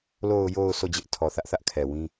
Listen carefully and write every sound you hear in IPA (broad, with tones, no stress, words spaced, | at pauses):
lo˨ʊ̯jo˨ʊ̯ so˦˨d͡ʑɪ˦ʔ tʰɔ˨θä˦ʔθä˦ʔkʰɛ˨ wĩ˦